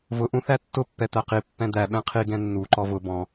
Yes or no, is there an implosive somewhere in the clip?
yes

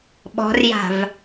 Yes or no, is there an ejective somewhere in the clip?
no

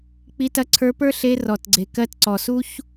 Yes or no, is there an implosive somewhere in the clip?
no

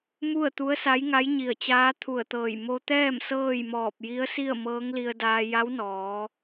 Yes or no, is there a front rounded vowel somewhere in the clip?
no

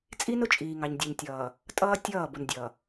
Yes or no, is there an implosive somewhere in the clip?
no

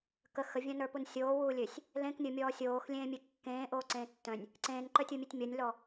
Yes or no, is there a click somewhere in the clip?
yes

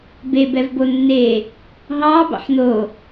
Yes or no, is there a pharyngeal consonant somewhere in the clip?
yes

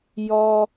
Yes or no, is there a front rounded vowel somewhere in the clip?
no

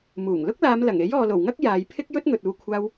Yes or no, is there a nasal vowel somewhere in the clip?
no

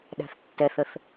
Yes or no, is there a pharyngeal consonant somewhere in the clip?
no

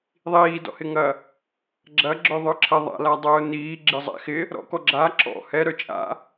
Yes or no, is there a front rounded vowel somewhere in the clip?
yes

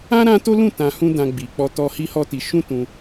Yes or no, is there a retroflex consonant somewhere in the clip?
no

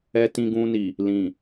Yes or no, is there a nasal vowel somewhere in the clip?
yes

